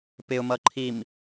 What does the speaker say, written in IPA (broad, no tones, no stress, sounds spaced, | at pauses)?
p ɪ ʊ̯ m ʌ ǃʰ i m